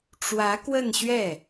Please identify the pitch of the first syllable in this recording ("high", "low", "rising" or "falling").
rising